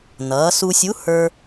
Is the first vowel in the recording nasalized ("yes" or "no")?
no